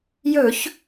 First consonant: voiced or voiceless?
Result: voiced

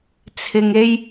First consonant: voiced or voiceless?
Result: voiceless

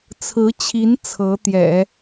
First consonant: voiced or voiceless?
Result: voiceless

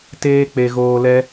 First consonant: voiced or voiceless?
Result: voiceless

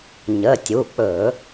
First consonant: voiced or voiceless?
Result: voiced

